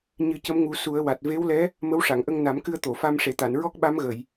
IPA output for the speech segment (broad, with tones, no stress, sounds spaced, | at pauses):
ɲ ɨ˨˩˦ c ə˧˥ m ŋ u˨˩˦ s u˨˩˦ ə̯ w a˨˩ t̚ v e˧˥ w l ɛ˧˥ | m ə˧˥ w ʂ a˨˩˨ ŋ ʔ ə˧ ŋ n a˨˩˦ m k ɨ˧ ə̯ t̪ o˨˩˨ f a˧ m ʂ e˨˩ t̪ a˨˩˨ n ɹ ɔ˦˥ k̚ ɓ a˧˥ m ɣ ə˨˩˨ j